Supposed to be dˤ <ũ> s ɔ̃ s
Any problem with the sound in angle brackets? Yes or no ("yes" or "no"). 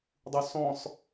yes